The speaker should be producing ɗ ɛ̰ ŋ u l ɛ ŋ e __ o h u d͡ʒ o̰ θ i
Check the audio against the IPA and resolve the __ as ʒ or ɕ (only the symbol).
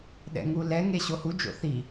ɕ